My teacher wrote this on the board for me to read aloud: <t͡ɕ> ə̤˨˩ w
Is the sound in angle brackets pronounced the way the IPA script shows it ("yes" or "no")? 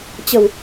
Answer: yes